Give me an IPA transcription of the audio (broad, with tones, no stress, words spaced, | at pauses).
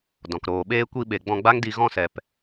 dɔ̃˨kɾoː˨ɓeː˦ kʷi˧ɓe˨ ɡ͡bɔ̃˧ɡ͡ba˦ŋdi˧ ɣɔ̃˧sɛ˨p